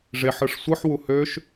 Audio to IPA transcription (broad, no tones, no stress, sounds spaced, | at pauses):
ʐ e ħ ɯ ʂ sʷ ɯ ħ w u h ø ʃ